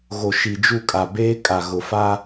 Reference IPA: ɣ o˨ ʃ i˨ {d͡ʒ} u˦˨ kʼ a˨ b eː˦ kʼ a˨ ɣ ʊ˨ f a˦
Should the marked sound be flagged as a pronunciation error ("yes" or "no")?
no